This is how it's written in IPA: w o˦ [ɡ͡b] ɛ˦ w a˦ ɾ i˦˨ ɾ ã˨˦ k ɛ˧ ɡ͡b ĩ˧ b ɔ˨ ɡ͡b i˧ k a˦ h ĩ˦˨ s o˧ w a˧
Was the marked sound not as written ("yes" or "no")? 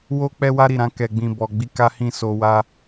yes